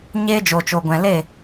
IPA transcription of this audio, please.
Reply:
ɲ eː˦ d͡ʒ o˨ t͡ʃ o˨ ɡʷ ɛ̃˨ l e˦˨

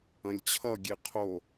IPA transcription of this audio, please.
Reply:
ɐ̃ lʲ t͡ɕʰ ʌ ɡʲ e qʰ o

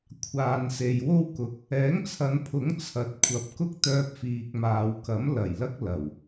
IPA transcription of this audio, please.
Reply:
kʷʰ aː˨ n s e˨ j w o˥ w k ʊ˨ k̚ | ɛː˨˥ ŋ t͡sʰ ɐ˨˧ n pʰ ʊ˨˥ ŋ t͡sʰ ɐ˨˥ t̚ kʷʰ ɐ˨ p̚ k ʊ˥ k̚ t̪ œː˧ p̚ f iː˨ k̚ m aː˨ w k ɐ˨˥ m l ɐ˨˩ j l ɐ˥ k̚ l ɐ˨˩ w

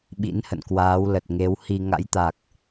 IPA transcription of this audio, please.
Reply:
ɓ ḭ˧˥ n h ə̰˧˨ n k w aː˨˦ w l ə˨˩ t̚ ŋ e˨˦ w h i˧ ŋ a̰˧˥ j t̪ a˨˩ k̚

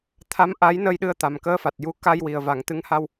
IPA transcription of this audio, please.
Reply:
t̪ʰ a˧˥ m ʔ a˧˥ j n ə˧ j ɗ ɨ˧ ə̯ t̪ a˨˩ m k əː˧˥ f a˨˩ t̚ j u˧˥ k a˧ j w i˨˩ ə̯ v a˨˩˦ ŋ t̪ ɨ˧˥ ŋ h a˧ w

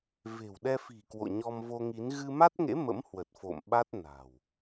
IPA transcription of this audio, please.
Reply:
v e̤˨˩ w ɗ ɛ˧ f i̤˨˩ k w o̰˧˨ ɲ ɔ˧ m v o˧ ŋ i˨˦ n ɣ ɨ˧ m a˦˥ t̚ ŋ ḛ˧˥ m ə̰˧˥ m h w ə˨˩ t̚ f o̰˧˨ m ɓ a˦˥ t̚ n a̤˨˩ w

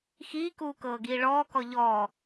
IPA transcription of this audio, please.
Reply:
x iː k uː k ɤː ɡ iː ɭ ɔː k ɔ ʎ ɔː

